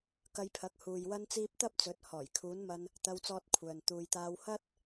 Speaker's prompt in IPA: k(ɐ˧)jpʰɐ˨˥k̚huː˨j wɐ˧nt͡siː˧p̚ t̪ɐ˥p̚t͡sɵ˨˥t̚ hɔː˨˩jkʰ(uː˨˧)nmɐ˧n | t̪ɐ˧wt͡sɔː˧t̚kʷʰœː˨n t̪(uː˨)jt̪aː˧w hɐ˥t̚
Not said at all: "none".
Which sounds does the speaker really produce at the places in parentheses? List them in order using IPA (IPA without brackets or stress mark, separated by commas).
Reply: ɐ˧, uː˨˧, uː˨